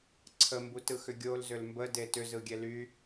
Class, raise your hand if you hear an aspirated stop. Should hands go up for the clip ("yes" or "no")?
yes